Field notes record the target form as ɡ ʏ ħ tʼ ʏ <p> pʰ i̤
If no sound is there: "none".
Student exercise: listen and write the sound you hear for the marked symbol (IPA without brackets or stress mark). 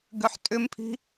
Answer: m